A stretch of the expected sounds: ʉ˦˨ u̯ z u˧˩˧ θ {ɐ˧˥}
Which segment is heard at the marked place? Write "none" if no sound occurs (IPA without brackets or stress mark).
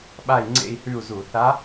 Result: a˧˥